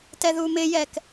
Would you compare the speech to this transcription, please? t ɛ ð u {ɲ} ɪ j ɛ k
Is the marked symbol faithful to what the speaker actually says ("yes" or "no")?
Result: no